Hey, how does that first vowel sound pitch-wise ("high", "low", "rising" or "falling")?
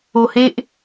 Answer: low